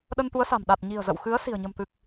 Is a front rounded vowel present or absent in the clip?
absent